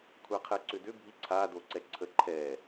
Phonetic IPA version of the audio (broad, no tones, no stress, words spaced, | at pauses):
kʷʰaqʰɛǀʏdʏ bʱiǀʰa doǀɛǀʰə ǃʰɛ